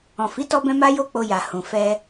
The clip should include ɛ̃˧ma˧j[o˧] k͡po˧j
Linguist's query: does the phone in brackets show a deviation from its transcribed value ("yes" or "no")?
no